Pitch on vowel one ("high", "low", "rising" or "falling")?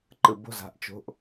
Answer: low